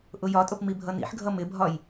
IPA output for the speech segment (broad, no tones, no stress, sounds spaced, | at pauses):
ʔ ʊ j ɒ tʼ ʊ p m i bʱ ʌ n ḭ ħ ɡʱ ʌ m ɪ bʱ ɒ j